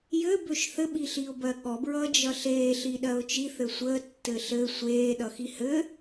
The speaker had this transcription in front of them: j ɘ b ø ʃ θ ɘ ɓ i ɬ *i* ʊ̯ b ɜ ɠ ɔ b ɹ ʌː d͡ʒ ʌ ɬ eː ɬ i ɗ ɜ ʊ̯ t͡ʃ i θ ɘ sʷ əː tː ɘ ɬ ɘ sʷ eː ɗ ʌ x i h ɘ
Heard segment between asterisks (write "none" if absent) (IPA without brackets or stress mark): i